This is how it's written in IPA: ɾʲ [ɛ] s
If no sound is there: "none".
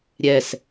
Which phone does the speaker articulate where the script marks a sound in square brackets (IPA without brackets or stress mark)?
ɛ